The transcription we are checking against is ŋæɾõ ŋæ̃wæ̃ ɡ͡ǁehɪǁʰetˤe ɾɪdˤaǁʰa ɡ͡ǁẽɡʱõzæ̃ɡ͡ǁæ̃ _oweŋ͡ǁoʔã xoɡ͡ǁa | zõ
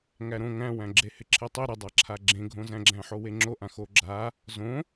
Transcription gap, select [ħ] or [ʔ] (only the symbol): ħ